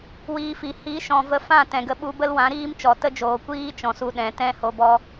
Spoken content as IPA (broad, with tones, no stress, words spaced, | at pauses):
wiː˧fi˨ hi˨˦ʃɔ̃˨ və˧fã˦˨ tɛ̃˨ɡə˧ɓu˧bə˦l wã˨˦ɾiː˦m t͡ʃɔ˨tə˦d͡ʒoː˨ kʷiː˦t͡ʃɔ̃˨su˧ ɗɛ̃˨ tɛ̃˦ho˧bɔ˦